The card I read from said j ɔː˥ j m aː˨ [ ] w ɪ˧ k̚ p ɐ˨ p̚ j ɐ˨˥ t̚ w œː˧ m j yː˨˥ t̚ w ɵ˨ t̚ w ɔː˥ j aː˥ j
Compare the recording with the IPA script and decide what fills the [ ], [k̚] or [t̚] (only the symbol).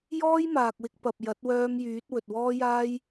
k̚